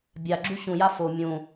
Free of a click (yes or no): no